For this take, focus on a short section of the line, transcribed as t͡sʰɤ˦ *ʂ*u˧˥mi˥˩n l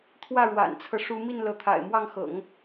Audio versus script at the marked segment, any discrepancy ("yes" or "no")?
no